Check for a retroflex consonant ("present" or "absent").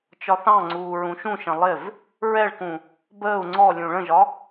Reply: present